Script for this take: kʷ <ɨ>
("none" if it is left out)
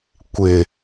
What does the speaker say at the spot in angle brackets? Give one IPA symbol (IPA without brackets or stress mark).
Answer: ɪ